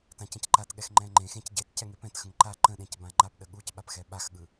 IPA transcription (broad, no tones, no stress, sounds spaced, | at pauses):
t ã c ə̃ c ǃ a t ɠ ɛ x ŋ͡ǃ ɛ̃ ŋ͡ǃ ẽ x ẽ c ɟ e t c ɛ ŋ e p ɛ̃ t x ə̃ ŋ ǃ a ǃ ə̃ ɗ ẽ c b ã ŋ͡ǃ a p ɗ ə ɠ u c ɓ a p x ɛ ɓ a x ɠ ɯ